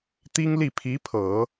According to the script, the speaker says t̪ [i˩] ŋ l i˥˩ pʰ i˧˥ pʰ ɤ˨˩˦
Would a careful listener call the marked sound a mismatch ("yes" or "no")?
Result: yes